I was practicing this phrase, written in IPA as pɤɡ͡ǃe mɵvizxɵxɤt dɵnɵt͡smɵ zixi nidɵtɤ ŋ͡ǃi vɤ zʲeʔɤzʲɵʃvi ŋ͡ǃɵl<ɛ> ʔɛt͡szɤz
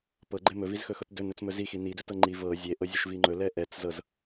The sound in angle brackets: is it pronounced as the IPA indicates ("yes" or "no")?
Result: yes